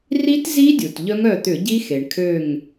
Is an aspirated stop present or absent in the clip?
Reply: present